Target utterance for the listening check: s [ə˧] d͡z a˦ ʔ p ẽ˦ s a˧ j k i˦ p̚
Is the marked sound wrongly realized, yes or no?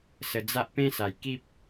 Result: no